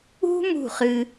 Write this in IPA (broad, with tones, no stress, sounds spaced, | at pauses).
ṳ˦ m ṳ˦˨ χ ɨ˦